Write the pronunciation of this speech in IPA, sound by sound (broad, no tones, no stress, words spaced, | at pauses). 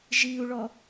ʒiu̯ɭɔ